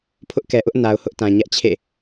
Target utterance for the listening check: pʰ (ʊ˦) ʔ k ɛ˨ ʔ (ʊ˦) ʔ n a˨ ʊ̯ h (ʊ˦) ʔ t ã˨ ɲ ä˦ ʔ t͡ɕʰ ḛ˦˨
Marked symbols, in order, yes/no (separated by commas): yes, yes, yes